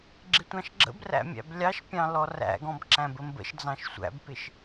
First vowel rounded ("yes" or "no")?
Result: no